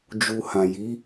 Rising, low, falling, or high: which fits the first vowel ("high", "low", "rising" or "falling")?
low